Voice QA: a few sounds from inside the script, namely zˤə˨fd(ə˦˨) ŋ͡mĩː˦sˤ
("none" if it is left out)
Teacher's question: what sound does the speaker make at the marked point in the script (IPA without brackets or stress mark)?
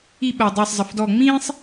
ɔ˦˨